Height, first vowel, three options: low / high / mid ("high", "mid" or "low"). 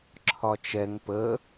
low